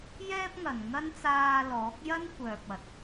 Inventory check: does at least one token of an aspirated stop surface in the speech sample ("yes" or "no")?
no